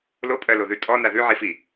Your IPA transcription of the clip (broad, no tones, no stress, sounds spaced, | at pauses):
l o pʼ ɜ l o ð ʉ tʼ ɔ n a ð ʉ ʕ i f i